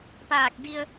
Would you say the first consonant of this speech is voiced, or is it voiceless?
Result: voiceless